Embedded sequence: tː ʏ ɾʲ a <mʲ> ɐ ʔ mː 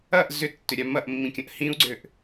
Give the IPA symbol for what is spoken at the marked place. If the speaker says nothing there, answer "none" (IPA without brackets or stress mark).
m